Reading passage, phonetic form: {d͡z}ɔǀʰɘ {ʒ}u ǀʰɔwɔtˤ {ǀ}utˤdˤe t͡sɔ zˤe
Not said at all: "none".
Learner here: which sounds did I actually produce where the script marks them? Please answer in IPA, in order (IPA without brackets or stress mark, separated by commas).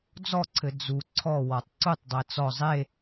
d͡z, d͡z, ǀ